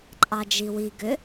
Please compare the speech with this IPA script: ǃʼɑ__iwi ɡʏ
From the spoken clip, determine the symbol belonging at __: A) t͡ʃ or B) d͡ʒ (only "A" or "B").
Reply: B